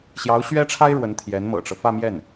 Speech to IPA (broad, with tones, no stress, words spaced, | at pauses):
ɕjɑ˧˥ʊ̯ɕɥɛ˥ʈ͡ʂʰa˥ɪ̯ ɻwə˧˥nt̪ʰjɛ˧˥nmɤ̰˨˩ʈ͡ʂɤ˦ fä˥˧mjɛ˥˩n